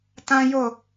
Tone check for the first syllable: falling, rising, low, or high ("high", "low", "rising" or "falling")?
high